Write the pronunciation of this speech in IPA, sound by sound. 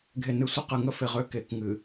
ɡʱ e˨ n ɨ˨ sʷ ə˦ q ɨ˨ ŋ ə˦ f e˨ ʁ ø˦ k e˨ k ŋ ɨ˨

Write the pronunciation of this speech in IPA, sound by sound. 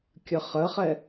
kʲ ə χ ə χ ɛ

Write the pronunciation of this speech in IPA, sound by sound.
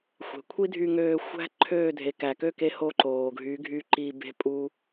xʷ e̤˨ kʷʰ i˦ dʱ y˧ ŋ øː˧ xʷ æ̤˦ ǃʰ øː˦˨ dʱ e˨ k æ˨ k ø˦˨ k e˧ h o˦ ǃ oː˨ ɡʱ y˨˦ ɡʱ y˧ ǃ i˧ b e̤˦ pʼ u˦

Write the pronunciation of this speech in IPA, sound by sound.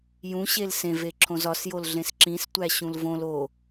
j ũ ɕ e l s ẽ v e ǁʰ õ z ɒ s j o l ɮ ẽ s ǁ ĩ s tʷ æ ɕ ũ l v õ l o

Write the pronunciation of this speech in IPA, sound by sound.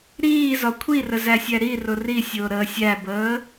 ɾ iː z ɒ kʷʰ i r ə z æ sʲ æ ɾ i r ʊ r i sʲ ʊː ɾ əː sʲ æ b əː

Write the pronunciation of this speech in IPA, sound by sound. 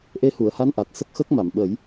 ʔ e˧ h u˨˩˨ ə̯ h a˧˥ n ʔ a˨˩ t̚ s ə˦˥ k̚ x əː˦˥ k̚ m a˨˩˨ m ɓ ə˨˩˦ j

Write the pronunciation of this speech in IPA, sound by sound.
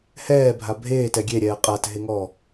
h ɛː bʱ a bʱ eː t ɛ ɡʲ e ɾʲ ɛː qʼ a t ɦ e ŋ ɔː

